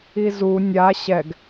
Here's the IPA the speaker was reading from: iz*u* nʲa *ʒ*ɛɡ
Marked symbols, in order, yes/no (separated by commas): yes, no